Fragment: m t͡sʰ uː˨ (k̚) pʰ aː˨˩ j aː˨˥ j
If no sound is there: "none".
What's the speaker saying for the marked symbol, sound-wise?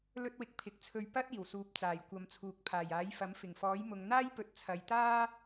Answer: k̚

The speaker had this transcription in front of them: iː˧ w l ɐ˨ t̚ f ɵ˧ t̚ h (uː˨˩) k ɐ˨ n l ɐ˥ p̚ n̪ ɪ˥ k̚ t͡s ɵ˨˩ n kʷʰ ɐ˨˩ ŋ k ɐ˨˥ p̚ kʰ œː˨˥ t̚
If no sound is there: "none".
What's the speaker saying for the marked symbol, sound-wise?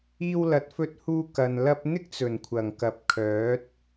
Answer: uː˧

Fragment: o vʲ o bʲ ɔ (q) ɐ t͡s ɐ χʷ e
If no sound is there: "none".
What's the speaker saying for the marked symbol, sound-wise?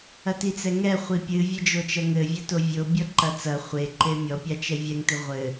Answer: ǃ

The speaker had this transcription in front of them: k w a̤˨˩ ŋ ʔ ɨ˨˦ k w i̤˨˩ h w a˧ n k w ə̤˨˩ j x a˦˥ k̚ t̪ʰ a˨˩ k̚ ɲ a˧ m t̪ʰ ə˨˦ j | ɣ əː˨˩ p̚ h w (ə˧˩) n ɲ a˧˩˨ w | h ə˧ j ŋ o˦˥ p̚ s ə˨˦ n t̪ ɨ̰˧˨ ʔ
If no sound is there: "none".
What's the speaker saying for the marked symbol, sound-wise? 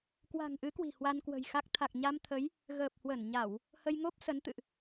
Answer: ə˧˩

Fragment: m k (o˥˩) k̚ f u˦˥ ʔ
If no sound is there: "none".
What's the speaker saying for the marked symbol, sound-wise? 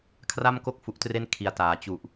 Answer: o˥˩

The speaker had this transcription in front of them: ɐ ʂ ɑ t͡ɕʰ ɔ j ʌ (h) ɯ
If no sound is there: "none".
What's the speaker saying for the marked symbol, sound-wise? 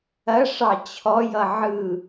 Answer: ʕ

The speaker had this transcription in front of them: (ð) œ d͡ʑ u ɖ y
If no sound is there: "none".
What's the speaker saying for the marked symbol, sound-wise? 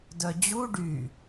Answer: d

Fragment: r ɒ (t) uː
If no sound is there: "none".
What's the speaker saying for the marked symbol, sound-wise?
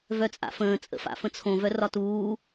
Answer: t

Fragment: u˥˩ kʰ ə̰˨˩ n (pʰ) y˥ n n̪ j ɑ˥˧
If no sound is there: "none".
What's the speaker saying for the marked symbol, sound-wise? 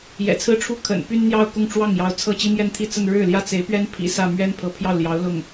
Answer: p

